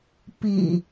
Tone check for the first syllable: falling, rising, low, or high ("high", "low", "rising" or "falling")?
low